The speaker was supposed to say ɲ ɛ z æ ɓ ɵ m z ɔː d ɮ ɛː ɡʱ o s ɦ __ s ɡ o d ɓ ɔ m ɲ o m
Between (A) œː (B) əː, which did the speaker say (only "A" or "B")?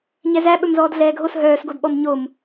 A